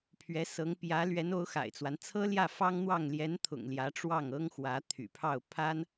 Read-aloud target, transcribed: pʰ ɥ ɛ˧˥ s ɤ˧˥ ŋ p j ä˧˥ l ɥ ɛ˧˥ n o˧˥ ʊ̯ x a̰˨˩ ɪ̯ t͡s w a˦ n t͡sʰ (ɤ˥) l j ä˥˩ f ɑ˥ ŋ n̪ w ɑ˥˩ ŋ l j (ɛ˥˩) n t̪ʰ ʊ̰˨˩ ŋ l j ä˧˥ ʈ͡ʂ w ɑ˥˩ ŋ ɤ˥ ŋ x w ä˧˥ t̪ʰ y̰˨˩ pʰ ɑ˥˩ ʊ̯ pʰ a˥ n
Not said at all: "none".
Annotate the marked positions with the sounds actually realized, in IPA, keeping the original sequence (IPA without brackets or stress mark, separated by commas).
ɤ˥, ɛ˧˥